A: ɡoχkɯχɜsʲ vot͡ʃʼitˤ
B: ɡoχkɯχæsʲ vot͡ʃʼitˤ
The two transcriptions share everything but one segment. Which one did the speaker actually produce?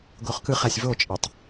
B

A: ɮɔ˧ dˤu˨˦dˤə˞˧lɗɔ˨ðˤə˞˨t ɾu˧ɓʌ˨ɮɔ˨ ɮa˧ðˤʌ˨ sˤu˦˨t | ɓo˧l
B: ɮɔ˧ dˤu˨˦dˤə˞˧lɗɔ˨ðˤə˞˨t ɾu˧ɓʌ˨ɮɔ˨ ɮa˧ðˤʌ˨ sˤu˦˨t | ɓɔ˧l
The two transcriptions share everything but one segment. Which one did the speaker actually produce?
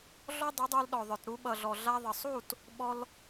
B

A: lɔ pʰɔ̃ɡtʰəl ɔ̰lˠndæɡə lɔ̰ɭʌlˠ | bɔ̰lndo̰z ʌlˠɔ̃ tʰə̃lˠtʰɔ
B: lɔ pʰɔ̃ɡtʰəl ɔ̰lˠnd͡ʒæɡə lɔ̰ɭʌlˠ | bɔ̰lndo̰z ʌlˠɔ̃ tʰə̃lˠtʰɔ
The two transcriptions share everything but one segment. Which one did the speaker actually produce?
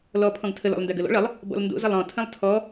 A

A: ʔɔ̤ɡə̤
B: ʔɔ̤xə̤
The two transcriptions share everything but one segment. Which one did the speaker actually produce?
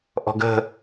A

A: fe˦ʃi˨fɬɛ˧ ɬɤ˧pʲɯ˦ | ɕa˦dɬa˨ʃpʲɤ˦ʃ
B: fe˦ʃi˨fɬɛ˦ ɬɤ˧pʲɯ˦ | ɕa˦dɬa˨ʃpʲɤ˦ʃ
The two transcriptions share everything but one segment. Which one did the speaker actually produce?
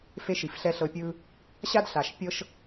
B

